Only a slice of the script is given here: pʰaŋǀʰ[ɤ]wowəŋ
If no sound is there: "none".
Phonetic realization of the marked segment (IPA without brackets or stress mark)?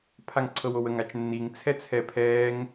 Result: ɤ